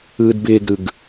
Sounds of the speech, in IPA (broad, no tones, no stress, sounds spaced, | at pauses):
ɯː d b ɪː ɡ ɾ ɯ ɡ